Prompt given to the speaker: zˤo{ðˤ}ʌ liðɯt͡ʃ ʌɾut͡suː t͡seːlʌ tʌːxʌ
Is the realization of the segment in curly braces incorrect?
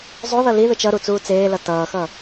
yes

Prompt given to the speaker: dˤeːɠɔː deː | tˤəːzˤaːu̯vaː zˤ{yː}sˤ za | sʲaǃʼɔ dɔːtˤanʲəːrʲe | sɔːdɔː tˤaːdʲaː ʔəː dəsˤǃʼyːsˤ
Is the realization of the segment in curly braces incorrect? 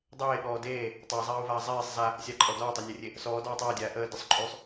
yes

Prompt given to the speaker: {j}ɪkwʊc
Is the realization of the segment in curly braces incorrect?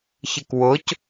yes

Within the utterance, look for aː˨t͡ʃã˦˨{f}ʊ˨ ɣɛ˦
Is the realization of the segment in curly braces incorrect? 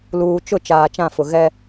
no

